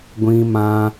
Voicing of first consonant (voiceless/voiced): voiced